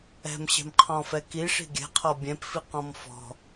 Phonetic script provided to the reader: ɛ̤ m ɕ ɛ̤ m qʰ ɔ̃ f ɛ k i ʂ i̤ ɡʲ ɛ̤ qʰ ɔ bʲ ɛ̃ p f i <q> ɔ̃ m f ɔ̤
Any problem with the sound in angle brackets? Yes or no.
no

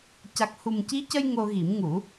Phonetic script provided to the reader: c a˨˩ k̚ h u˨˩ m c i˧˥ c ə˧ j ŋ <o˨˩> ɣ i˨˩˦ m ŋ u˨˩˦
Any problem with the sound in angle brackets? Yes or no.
yes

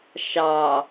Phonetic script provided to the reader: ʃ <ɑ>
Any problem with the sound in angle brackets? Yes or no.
no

